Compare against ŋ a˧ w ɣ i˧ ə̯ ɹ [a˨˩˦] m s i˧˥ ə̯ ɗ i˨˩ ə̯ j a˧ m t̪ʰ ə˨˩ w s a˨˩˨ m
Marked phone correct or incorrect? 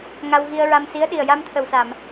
incorrect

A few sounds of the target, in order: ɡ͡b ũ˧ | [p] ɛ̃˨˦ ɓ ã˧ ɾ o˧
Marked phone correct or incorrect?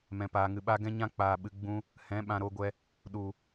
incorrect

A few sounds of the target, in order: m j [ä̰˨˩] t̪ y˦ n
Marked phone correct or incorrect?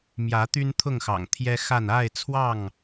incorrect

